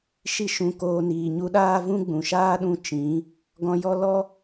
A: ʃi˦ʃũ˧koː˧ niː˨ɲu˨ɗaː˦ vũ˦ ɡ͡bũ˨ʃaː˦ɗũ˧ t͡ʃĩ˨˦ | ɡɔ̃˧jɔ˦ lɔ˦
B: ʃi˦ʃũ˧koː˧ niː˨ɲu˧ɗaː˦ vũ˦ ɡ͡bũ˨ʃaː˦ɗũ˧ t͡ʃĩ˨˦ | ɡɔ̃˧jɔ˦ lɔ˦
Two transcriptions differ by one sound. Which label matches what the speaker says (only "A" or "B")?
B